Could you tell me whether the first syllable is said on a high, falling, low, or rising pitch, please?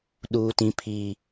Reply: low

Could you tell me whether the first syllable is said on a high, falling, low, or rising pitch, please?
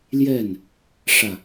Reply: falling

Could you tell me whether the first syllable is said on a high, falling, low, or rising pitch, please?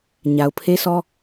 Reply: low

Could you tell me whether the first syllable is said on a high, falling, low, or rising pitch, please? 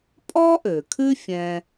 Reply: high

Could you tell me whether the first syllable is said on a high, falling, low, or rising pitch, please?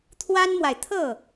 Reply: high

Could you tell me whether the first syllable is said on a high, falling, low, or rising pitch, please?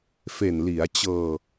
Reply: low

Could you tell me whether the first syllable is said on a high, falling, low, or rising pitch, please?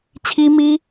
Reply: high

